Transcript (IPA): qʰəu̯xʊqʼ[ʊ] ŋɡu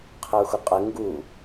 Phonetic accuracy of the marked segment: incorrect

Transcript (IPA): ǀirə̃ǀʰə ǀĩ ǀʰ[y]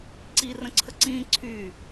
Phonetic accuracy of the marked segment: correct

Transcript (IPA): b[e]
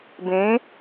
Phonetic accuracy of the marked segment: incorrect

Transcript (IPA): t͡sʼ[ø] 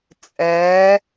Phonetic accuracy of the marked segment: incorrect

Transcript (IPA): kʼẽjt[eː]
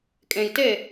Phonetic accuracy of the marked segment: incorrect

